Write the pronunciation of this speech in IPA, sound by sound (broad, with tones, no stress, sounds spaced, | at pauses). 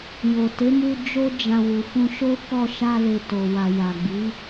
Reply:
j o˨ t e˨˦ m u˧ d͡ʒ o˦ d͡ʒ ã˧ w u˨ f ũ˧ ʃ o˦ k ɔ˦˨ ʃ a˧ l e˨ t o˨ w a˨ j a˨ ɡ͡b i˨˦